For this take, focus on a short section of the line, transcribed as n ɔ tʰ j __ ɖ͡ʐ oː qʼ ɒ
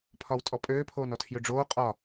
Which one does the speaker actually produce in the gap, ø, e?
ø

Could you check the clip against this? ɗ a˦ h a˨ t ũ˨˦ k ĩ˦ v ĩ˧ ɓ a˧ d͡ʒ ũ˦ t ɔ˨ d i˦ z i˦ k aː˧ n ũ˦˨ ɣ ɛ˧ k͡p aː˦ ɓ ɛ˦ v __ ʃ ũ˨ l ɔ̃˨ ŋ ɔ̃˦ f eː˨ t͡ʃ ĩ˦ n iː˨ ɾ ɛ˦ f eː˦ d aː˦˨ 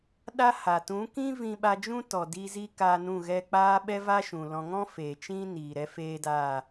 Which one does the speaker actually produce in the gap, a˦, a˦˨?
a˦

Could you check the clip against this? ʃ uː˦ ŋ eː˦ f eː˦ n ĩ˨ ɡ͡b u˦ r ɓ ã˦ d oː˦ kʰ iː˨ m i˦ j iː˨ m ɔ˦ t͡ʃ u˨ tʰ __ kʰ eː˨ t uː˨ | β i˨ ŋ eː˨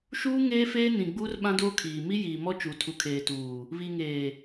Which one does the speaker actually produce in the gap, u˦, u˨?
u˨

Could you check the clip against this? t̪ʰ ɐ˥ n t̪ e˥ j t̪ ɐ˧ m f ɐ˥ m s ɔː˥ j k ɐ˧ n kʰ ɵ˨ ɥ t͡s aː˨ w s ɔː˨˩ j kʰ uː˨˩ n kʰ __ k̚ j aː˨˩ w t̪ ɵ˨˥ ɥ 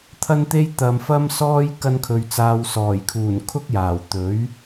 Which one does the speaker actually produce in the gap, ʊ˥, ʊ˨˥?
ʊ˥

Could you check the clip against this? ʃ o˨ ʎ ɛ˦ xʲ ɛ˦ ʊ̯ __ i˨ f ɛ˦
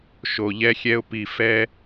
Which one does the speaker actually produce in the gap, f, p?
p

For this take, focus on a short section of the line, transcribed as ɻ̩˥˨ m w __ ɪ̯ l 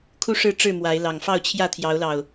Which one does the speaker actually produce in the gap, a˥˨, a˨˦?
a˨˦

